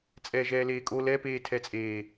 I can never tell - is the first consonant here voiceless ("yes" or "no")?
yes